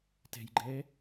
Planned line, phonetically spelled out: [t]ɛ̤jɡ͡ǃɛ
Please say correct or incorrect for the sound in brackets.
correct